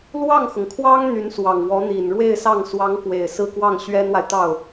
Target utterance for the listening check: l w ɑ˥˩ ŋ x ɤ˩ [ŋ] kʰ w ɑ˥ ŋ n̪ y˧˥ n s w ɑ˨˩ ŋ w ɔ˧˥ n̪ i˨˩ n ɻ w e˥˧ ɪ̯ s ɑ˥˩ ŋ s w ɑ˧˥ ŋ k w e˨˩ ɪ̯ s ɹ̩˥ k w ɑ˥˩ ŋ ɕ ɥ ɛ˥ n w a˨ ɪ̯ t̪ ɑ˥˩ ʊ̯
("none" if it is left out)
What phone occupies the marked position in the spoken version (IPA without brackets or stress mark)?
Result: ŋ